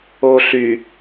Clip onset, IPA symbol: o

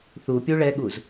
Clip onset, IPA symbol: θ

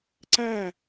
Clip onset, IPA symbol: ǀ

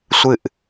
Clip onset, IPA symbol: sʷ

